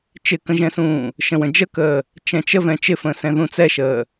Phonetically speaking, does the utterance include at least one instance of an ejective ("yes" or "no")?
no